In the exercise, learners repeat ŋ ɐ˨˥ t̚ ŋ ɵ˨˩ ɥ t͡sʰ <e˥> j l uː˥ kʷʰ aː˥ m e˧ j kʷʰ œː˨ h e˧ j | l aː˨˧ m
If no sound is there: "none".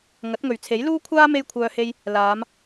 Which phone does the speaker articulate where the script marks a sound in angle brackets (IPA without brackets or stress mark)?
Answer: e˨˥